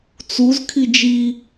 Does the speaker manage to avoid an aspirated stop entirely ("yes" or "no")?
no